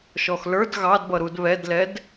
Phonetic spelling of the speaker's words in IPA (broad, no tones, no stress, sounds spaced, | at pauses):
ʃ ɔ x l ə˞ d ɣ ɑ d b ʌ ɾ u d β ɛ d l ɛ d